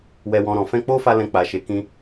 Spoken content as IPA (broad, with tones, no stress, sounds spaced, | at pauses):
w ɛ˧ w ɔ̃˧ ɾ ɔ̃˨ f ɛ̃˧ k͡p o˦ f a˧ l ɛ̃˧ k͡p a˨ ʃ e˨˦ k ĩ˧